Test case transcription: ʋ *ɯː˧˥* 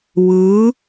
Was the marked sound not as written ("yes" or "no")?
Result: no